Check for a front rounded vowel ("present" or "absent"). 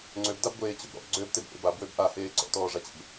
present